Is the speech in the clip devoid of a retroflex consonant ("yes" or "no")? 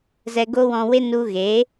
yes